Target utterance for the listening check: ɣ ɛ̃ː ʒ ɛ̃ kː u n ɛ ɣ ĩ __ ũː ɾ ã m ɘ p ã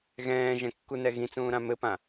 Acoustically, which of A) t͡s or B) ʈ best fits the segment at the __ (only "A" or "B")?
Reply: A